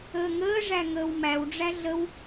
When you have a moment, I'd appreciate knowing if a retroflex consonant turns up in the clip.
yes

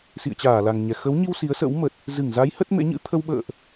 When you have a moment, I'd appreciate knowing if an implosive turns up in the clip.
yes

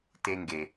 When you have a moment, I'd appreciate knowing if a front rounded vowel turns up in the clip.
no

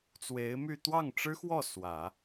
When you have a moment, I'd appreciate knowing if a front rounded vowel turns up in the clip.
yes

